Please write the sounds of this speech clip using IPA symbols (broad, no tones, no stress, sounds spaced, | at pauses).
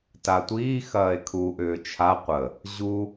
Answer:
t a tʷ iː x ɐː e̯ kʰ u ʔ ʏː t͡ʃʰ a qʷ ə | ʑ u